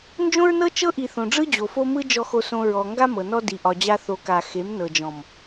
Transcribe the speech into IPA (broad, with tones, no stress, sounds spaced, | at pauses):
n d͡ʒ õ˦ ɹ n ɤ˦ t͡ʃ ɤ˦ ʔ i˨ θ õ˨ ɖ͡ʐ ɯ˦ d͡ʑ o˨ f o˦ m ɯ˦ d͡ʒ ɔ˨ x o˨ s õ˨ ɹ ɔ˨ ŋ ɡ a˦ m ɤ˨ n ɔ˦ d i˨ ʔ ɒ˨ d͡ʑ a˦ θ o˨ k a˨ x e˨˦ m n ɤ˨ d͡ʒ ɔ̃˨ m